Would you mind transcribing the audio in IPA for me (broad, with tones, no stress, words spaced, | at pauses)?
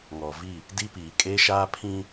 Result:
ŋɔ˨vi˦˨ | di˦piː˨ kʼeː˦ʃaː˦pʰĩ˦